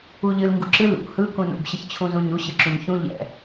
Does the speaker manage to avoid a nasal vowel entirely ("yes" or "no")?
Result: no